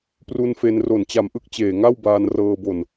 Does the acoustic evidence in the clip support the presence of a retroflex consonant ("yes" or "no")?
no